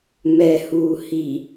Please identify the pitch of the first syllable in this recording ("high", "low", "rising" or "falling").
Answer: low